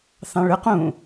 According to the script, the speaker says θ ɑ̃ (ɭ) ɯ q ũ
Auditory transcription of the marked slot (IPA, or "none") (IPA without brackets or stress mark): ɭ